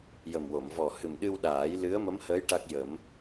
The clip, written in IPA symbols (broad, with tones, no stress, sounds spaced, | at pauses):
j ə˨˩ m w o˨˩˨ m v ɔ˨˩ h ɨ˨˩ m ɗ ɨ˧ w ɗ aː˨˩˦ j l ɨ˧˥ ə̯ m ə˧˥ m h əː˧˥ j ʈ a˦˥ k̚ j ə˨˩˦ m